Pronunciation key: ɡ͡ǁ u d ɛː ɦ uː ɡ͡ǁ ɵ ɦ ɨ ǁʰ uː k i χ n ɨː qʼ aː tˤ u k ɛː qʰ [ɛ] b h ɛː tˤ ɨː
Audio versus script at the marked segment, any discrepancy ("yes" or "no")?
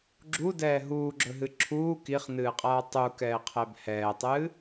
no